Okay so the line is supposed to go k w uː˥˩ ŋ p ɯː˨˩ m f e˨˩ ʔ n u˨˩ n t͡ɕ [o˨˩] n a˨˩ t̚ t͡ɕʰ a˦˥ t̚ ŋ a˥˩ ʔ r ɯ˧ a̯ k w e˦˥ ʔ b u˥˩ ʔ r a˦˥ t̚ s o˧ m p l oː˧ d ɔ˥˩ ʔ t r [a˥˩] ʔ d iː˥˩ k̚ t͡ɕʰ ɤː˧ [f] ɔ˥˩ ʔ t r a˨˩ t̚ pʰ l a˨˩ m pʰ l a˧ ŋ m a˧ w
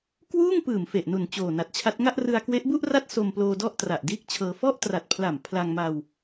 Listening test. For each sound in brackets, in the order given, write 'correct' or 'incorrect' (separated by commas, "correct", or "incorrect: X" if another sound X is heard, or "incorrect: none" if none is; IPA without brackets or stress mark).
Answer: incorrect: oː˨˩, incorrect: a˨˩, correct